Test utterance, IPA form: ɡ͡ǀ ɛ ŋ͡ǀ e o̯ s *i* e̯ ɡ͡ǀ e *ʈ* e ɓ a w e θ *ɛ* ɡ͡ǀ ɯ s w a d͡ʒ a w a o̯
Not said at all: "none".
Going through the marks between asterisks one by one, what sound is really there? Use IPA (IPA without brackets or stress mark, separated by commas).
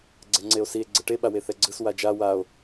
i, ʈ, ɛ